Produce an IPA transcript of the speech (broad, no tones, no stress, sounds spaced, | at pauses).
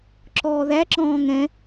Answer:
ǁ ɔː ð æ ǁ ɔ̃ː ŋ ɛ̃